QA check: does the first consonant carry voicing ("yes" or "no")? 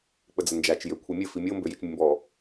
no